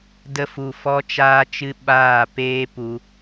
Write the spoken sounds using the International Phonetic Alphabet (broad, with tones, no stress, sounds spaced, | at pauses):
d ə˧ f u˨ f ɔ˦ t͡ʃ aː˦ t͡ʃ ɨ˦ ɓ aː˦˨ p eː˦ p u˧